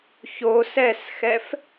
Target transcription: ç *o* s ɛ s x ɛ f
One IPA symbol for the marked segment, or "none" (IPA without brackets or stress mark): o